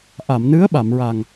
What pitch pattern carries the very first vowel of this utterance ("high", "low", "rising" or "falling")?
low